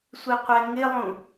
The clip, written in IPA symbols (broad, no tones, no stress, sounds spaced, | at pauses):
sʷ i qʷ ɛ ŋ ɪ lˠ ũ